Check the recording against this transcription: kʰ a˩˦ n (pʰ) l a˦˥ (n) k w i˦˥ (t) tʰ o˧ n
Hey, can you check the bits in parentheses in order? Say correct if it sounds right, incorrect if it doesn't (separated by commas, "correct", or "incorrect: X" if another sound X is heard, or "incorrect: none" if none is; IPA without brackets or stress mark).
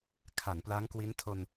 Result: incorrect: p, incorrect: ŋ, incorrect: n